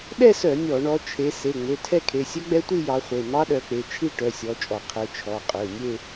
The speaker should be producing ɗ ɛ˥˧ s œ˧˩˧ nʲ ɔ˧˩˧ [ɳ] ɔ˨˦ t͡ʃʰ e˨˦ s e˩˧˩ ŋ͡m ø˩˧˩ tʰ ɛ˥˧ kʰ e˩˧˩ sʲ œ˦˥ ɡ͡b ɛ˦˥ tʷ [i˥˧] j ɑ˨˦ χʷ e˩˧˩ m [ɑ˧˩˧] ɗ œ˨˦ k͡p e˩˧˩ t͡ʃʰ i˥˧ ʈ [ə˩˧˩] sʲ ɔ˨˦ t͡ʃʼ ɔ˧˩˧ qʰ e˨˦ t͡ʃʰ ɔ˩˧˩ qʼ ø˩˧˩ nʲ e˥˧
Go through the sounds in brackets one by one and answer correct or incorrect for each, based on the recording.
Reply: correct, correct, incorrect: ɑ˦˥, incorrect: œ˩˧˩

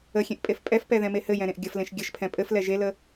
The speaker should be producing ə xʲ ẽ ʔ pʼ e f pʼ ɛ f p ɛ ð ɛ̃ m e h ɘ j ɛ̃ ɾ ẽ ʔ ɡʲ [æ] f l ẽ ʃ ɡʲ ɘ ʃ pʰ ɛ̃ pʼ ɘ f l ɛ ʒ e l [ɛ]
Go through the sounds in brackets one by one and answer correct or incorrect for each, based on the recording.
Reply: incorrect: ə, incorrect: ə

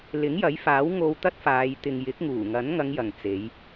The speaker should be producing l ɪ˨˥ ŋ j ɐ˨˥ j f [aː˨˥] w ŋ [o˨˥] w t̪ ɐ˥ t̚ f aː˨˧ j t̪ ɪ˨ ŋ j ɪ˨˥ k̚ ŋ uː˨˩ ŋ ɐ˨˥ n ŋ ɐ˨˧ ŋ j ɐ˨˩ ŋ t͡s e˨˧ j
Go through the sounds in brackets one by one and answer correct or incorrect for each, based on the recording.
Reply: correct, incorrect: o˧

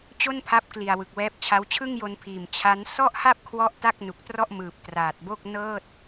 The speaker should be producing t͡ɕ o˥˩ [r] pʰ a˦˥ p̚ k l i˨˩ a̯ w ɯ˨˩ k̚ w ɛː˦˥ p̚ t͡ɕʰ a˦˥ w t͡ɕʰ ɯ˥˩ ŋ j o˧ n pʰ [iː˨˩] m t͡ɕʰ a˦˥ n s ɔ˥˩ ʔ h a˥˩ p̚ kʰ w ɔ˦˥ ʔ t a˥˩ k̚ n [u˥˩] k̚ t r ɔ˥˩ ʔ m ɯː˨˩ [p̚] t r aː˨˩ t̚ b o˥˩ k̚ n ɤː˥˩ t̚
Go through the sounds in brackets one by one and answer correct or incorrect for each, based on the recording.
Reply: incorrect: n, correct, incorrect: u˨˩, correct

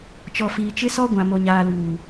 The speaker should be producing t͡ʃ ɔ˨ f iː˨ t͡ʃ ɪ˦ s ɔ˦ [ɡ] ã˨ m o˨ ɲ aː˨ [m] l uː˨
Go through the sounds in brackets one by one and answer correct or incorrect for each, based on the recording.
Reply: incorrect: ɡʷ, incorrect: none

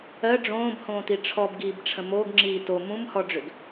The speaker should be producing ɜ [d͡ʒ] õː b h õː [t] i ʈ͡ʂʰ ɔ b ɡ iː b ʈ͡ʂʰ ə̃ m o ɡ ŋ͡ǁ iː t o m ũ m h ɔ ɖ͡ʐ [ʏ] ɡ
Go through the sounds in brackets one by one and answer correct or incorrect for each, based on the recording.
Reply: incorrect: ɖ͡ʐ, correct, correct

